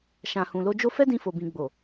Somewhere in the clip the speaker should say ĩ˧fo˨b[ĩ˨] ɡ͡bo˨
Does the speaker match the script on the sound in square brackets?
yes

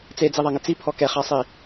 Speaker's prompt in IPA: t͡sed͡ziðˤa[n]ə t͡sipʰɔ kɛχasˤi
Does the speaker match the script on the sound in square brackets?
no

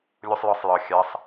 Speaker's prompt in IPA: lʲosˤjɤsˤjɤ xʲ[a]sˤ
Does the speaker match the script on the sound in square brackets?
yes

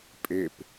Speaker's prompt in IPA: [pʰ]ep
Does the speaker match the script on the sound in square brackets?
no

